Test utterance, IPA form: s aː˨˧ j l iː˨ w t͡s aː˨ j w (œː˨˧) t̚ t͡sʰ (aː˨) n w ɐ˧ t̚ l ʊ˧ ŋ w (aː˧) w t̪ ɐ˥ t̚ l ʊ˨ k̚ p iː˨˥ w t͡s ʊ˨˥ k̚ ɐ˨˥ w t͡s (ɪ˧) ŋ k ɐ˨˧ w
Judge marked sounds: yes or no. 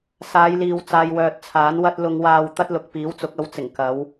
no, no, yes, no

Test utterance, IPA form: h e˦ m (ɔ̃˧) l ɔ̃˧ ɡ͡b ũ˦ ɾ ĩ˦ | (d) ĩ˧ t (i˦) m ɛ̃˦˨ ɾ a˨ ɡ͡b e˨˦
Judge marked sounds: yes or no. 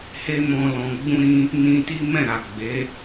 yes, no, yes

